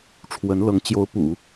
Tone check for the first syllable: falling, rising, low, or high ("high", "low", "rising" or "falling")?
rising